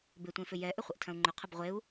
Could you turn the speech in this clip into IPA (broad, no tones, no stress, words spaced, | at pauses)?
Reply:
bɪtʷẽfʏ jɛ ʔʏχʷəʔtʰɐ̃u̯ŋ͡ǃʏ qʰəbʁʷeu̯